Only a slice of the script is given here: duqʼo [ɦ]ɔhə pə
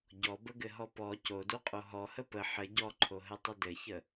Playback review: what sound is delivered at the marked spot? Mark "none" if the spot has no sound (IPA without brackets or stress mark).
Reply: ɦ